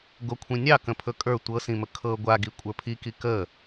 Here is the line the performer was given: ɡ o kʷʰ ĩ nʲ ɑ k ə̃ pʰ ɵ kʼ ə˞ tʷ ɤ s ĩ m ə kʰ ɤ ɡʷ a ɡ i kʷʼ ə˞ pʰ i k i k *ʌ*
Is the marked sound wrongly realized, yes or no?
yes